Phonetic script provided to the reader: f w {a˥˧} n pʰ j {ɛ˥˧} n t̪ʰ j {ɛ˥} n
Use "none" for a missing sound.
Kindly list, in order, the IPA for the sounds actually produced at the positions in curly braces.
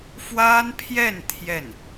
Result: a˥, ɛ˥˧, ɛ˥˩

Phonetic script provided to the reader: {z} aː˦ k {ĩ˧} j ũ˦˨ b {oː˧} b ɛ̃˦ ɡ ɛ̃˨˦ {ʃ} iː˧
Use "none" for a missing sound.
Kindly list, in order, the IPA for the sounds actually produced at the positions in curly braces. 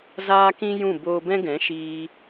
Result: z, ĩ˦, oː˧, ʃ

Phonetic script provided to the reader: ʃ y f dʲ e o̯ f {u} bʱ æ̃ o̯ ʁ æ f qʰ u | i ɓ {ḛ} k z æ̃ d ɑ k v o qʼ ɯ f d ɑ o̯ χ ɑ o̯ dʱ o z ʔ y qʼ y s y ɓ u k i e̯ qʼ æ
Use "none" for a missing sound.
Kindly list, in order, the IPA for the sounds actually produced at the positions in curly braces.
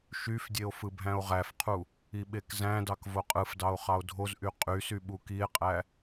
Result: ɯ, e

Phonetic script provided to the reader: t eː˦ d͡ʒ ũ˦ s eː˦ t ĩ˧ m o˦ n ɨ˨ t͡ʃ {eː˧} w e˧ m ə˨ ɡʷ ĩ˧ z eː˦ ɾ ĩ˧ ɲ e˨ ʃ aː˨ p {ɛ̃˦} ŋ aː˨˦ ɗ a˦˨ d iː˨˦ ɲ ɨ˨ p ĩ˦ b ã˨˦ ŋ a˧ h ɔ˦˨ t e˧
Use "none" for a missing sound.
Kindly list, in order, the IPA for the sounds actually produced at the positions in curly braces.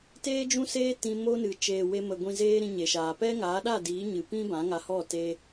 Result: eː˨, ɛ˦

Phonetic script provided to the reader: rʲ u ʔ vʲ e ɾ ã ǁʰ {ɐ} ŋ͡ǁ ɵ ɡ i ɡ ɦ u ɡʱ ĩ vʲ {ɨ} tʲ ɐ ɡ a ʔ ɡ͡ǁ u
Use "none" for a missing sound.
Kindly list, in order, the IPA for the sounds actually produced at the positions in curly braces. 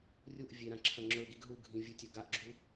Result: ɐ̃, ɨ

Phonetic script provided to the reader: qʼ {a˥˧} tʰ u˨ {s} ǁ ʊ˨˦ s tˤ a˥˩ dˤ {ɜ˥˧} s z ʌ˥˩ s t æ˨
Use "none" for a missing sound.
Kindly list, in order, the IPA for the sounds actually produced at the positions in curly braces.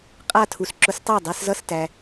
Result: a˥˧, s, ɜ˥˧

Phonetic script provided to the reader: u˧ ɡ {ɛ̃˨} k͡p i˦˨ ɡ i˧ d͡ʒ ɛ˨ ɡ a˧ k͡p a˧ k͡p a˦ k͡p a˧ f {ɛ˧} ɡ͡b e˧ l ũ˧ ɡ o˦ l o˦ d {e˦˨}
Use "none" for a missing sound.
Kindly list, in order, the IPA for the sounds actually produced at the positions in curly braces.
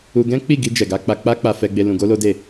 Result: ɛ̃˦, ɛ˧, e˦˨

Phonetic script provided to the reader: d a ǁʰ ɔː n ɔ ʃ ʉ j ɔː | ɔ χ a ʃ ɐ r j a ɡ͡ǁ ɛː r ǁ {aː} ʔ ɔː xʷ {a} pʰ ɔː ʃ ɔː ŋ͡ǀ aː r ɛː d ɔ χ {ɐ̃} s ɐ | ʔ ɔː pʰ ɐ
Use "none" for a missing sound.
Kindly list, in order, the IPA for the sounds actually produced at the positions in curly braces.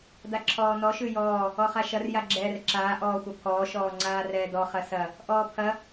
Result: aː, ɐ, ɐ

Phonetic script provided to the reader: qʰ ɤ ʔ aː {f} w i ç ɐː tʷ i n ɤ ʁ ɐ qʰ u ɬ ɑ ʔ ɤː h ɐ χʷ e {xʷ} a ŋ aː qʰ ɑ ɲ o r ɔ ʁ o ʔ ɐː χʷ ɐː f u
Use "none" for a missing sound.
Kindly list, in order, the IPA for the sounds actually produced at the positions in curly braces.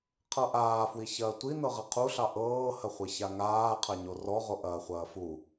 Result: f, ç

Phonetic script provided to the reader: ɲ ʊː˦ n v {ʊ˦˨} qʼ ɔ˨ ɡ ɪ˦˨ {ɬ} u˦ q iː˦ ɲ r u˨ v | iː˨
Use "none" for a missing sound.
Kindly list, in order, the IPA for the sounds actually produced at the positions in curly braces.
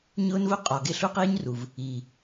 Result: ʊ˦, ɬ

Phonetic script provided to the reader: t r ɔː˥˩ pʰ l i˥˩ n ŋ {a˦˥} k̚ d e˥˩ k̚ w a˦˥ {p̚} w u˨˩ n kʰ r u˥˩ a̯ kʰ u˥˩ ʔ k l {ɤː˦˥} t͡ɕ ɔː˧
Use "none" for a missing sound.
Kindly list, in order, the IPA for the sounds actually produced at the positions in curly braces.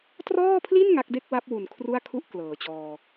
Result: a˦˥, p̚, ɤː˩˦

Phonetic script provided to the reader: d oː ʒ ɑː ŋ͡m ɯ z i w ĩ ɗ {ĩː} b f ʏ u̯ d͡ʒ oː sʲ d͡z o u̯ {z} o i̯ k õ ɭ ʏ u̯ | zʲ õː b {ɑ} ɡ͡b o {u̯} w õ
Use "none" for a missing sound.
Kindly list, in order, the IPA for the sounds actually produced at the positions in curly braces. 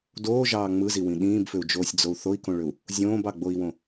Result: ĩː, θ, ɑ, i̯

